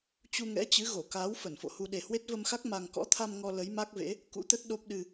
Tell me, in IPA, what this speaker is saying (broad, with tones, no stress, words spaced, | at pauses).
t͡ɕu˧ŋɛ̰˧˥t͡ɕɨ˨˦ ɣo˧˩kaː˨˦w fə˧˩nfo̰˧˨hu˧ ɗe˨˩hwe˦˥t̚və˧mxa˦˥k̚ ma˧ŋ kɔ̰˧˥t̪ʰa˧m ŋɔ˧ lə˨˦jma˦˥k̚vḛ˧˥ | kṵ˧˥t̪ə˦˥t̚ɗo˦˥p̚ ɗɨ˧